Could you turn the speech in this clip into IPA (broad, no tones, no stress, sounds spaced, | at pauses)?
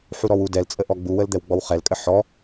ħ u ɾ ɔ w u d ɛ l t͡sʼ ə ʔ ɔ ɡ͡b u w ə l d̪ ɛ w ɡ͡b ɔ w χ ɛ l kʼ ə ħ ɔ